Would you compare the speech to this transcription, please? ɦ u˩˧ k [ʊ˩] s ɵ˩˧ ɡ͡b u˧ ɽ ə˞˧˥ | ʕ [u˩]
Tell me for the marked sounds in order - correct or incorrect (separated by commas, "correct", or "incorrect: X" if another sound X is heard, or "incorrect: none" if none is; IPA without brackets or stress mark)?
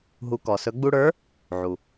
incorrect: ɔ˩, correct